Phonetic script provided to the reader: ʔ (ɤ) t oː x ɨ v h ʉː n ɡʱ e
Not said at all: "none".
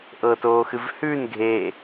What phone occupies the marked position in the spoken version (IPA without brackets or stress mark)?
ɤ